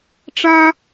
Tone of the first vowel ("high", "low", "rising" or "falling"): high